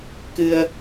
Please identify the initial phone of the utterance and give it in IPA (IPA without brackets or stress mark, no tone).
k